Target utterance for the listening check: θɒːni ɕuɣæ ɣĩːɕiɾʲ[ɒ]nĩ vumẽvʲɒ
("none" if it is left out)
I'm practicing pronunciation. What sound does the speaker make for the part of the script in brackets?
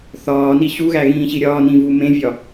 ɒː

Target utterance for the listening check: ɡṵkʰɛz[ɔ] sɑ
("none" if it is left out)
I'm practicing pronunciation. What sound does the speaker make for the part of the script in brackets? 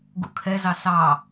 ɑ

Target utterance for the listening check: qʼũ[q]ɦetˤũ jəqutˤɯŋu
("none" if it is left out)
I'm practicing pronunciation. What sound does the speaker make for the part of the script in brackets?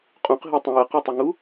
q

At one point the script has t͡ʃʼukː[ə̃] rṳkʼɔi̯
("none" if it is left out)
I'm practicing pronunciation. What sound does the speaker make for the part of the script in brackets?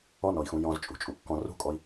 ɔ̃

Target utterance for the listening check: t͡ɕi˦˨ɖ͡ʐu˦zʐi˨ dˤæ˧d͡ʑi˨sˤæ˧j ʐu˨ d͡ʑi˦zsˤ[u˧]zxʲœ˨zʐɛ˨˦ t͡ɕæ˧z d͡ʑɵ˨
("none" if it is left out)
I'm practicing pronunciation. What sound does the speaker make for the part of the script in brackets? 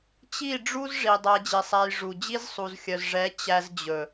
u˨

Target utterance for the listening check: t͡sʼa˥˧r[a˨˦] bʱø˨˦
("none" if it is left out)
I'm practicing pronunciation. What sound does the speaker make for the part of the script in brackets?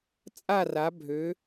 a˨˦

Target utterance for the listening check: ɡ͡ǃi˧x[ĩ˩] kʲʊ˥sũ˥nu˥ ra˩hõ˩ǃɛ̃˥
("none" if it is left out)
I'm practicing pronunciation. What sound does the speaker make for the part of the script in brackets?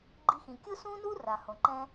ĩ˩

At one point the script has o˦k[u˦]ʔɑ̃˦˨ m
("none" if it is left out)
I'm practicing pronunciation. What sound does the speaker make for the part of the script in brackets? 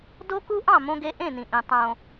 u˦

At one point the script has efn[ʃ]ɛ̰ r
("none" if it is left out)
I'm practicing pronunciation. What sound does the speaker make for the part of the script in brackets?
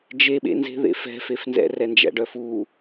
z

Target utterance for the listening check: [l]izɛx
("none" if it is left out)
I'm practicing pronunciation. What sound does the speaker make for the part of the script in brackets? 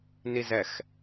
n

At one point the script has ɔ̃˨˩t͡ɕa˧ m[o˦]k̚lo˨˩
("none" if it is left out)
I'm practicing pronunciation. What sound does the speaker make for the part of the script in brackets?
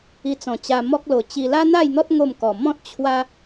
ɔ˦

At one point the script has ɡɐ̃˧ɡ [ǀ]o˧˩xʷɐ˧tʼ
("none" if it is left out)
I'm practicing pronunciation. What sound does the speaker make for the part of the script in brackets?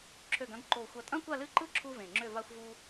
ǃ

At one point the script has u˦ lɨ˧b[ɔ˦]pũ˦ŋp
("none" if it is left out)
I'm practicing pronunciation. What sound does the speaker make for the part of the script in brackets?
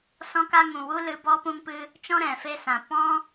ɔ˦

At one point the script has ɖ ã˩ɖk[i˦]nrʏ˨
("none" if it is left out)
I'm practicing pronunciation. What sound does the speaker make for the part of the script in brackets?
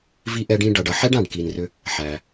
i˩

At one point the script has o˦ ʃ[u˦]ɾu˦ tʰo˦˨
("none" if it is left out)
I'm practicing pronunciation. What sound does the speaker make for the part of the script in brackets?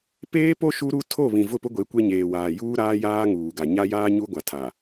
u˦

